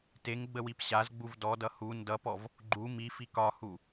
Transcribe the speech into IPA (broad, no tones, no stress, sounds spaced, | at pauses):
t e ŋ ɡ͡b ə w i p ɕ a z ɡ͡b u v d ɔ d ʌ h u n d ʌ p ɔ v | ɡ͡ǃ u m i f i k ɒ h u